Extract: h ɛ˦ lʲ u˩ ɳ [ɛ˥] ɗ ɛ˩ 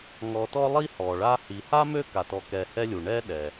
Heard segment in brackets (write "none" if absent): ɛ˦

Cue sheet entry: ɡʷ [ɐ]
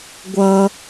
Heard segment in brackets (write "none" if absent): ɐ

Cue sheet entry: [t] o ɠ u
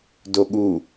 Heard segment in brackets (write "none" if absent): d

